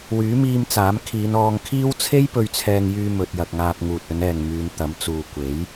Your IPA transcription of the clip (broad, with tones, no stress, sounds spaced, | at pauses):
w yː˨˥ m iː˧ m t͡s aː˨˥ m kʰ iː˨˧ n ɔː˧ ŋ kʰ iː˥ w t͡sʰ e˥ j p ɵ˧ ɥ t͡sʰ ɛː˧ ŋ j yː˧ m ɵ˧ t̚ j ɐ˧ k̚ ŋ aː˧ p̚ ŋ uː˨ t̚ ɵ˨˧ n ɛː˨ ŋ m yː˨˧ n t̪ ɐ˨˥ m t͡s uː˨ kʷ e˨˥ j